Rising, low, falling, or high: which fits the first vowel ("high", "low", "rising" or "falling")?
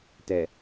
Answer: low